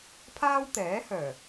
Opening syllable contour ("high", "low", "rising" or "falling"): high